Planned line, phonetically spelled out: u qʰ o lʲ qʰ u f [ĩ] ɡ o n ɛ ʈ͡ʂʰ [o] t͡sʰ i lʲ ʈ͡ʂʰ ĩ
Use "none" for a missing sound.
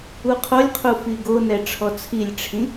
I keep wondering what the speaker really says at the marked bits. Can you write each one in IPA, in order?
i, ɔ

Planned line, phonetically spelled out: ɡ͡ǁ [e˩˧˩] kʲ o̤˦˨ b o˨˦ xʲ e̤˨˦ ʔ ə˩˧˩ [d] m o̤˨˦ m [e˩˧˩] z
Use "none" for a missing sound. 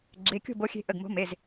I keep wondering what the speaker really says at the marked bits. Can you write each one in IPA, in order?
e˩˧˩, ɡ, e˩˧˩

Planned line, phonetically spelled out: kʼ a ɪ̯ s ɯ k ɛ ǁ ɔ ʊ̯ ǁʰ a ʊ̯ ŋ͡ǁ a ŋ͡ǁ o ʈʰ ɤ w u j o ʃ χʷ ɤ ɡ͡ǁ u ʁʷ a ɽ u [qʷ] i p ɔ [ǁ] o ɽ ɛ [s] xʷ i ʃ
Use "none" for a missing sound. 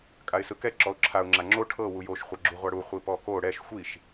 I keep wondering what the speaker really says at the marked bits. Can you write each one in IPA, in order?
χʷ, k, ʃ

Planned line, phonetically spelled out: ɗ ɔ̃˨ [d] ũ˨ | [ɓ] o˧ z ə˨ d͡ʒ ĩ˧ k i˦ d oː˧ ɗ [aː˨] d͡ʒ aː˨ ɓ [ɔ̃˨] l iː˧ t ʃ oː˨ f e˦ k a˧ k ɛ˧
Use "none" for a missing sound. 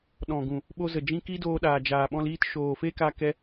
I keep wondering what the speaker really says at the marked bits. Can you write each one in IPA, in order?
ɡ, ɓ, aː˨, ɔ̃˧

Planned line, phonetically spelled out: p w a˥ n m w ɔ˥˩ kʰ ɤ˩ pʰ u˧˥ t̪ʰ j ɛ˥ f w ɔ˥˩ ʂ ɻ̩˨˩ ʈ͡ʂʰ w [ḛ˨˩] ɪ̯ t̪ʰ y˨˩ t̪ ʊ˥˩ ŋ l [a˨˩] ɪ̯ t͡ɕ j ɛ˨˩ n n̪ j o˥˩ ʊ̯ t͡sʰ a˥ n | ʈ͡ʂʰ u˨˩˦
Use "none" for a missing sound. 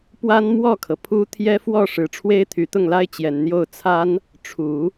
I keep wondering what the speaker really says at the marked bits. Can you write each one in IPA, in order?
e˥, a˥

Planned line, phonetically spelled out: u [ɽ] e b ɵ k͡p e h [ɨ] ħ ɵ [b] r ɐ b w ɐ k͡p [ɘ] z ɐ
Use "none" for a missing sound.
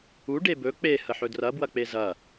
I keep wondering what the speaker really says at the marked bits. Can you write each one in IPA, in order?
ɖ, ə, d, e

